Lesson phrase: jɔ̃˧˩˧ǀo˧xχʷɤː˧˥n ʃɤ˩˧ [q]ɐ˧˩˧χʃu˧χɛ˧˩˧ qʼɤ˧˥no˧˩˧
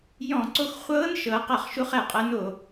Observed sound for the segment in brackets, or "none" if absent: q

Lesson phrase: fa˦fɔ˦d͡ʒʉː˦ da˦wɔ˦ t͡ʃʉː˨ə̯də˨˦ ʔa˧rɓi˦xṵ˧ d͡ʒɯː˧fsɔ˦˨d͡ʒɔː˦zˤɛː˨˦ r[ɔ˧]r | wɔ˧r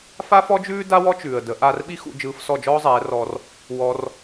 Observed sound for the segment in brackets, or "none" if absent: ɔ˧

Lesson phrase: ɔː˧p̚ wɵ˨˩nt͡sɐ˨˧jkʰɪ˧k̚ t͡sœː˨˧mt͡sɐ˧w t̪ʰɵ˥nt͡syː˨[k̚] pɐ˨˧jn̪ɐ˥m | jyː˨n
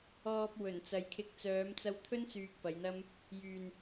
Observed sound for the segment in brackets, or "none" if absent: k̚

